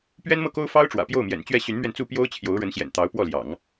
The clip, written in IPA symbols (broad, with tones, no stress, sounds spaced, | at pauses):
p ɥ ɛ˥ n m ɤ˥˩ k o˥ ʊ̯ f ɑ˥ ʊ̯ ʈ͡ʂ w ä̰˨˩ p j o˥˩ ʊ̯ m j ɛ̰˨˩ n t͡ɕ ɥ ɛ˥˩ ɕ y˧˥ n m ɥ ɛ˧ n t͡s u˥˩ p j o˥ ʊ̯ t͡ɕʰ j o˧˥ ʊ̯ ɻ ə˧˥ n ɕ j ɛ̰˨˩ n t̪ ɑ˧˥ ʊ̯ p w ɔ˥˩ l j ɑ̰˨˩˦ ŋ